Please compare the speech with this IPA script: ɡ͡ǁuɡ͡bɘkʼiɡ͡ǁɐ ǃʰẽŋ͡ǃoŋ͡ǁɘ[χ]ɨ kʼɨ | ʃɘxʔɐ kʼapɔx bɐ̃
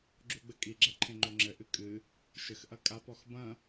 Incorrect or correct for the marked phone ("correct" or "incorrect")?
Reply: incorrect